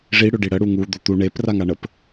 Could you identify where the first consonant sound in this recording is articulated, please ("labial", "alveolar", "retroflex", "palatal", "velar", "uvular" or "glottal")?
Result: retroflex